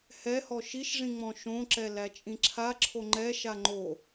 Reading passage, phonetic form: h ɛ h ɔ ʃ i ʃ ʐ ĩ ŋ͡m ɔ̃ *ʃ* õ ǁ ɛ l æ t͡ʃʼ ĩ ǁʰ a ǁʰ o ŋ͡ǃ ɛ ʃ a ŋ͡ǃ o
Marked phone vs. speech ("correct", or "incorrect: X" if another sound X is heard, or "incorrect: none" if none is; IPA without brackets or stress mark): correct